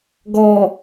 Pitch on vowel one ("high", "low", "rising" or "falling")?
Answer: low